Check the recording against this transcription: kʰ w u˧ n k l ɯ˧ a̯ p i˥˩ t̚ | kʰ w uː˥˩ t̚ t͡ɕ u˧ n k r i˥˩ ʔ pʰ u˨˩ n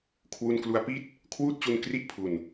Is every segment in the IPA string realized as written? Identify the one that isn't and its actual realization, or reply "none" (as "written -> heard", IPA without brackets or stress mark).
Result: ɯ˧ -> u˧